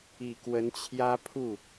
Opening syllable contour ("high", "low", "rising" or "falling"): low